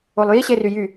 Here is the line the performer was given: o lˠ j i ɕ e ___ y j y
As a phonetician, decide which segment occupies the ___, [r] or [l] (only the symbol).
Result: r